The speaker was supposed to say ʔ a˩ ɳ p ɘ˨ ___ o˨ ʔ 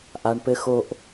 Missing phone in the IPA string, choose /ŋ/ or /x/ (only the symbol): x